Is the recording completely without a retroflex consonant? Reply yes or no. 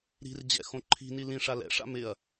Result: no